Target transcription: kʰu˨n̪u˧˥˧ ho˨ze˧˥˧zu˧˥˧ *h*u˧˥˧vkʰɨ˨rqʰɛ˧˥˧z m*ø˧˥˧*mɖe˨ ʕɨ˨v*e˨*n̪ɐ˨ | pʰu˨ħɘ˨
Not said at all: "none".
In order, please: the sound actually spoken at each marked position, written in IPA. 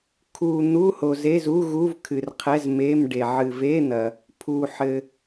ɣ, e˧˥˧, e˧˥˧

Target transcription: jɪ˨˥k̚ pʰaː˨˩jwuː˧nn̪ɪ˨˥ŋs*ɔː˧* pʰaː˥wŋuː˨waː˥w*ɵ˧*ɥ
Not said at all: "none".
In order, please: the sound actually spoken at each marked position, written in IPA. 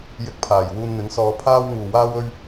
ɔː˧, ɵ˥

